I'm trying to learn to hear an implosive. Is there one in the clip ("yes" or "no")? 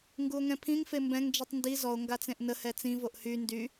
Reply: no